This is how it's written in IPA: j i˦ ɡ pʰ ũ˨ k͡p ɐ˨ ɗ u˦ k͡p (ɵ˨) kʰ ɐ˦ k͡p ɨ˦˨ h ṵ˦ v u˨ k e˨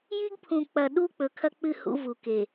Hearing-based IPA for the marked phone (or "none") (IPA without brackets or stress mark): ɵ˨